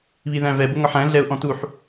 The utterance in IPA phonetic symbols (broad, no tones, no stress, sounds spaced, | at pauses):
β i ð æ̃ v ɛ b ʊ ŋ ɒ ħ æ̃ ɮ ɛ ʊ̯ ʔ ɔ̃ t u ħ